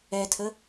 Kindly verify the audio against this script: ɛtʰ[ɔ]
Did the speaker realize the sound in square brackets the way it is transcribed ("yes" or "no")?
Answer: no